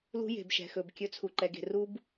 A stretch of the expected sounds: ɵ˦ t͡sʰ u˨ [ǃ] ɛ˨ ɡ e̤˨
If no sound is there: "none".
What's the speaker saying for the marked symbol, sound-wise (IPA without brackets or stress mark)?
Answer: ǃ